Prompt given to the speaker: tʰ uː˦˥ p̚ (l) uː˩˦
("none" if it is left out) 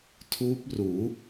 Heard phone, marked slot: r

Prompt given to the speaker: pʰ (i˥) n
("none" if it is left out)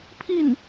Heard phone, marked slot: i˥˩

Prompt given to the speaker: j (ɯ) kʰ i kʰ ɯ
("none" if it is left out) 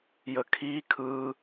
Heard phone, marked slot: ə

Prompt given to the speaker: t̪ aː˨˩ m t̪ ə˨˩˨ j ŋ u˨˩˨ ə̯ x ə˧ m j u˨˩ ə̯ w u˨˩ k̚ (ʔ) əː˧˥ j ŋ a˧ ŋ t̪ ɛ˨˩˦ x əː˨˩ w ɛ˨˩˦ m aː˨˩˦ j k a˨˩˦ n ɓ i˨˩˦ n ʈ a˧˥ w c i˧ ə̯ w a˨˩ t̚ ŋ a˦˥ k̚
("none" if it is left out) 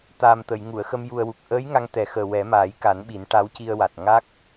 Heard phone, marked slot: ʔ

